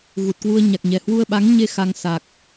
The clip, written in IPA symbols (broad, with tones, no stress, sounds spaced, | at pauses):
ɣ u˨˩ t̚ k w u˧ ə̯ ɲ a˨˩ k̚ ɲ ɛ˨˩ h w u˧ ə̯ ɓ a˨˦ ŋ ɲ e˧ x a˧ ŋ s a˨˩ k̚